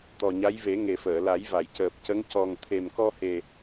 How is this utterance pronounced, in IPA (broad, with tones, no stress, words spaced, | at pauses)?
t̪ɔ˨˩ɲa˧˥jve˨˩˦ ŋe˨˩fəː˨˩˨la˨˩˦j va˨˩˨jcəː˨˩p̚ cə˧˥ŋ cɔ˨˩ŋt̪ʰe˨˩mkɔ˧he˨˩